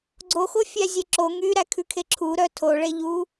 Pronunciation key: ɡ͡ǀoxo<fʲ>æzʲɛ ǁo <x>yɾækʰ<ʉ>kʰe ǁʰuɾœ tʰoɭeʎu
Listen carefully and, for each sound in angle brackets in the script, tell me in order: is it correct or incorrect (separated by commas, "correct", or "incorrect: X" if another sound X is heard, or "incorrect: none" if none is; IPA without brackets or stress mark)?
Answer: correct, incorrect: ŋ, correct